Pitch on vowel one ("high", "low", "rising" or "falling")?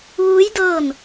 rising